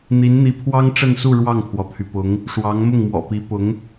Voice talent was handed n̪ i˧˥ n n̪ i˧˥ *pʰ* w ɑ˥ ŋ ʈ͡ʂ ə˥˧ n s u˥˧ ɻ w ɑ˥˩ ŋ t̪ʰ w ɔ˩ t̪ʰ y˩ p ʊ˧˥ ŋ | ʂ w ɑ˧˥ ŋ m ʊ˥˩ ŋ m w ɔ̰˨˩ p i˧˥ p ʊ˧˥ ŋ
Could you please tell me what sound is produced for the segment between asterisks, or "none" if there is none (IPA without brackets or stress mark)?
pʰ